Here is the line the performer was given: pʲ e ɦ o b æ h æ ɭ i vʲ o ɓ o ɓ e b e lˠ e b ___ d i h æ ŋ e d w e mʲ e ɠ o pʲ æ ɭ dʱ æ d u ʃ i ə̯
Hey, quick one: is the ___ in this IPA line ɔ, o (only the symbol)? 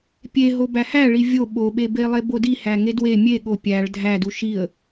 o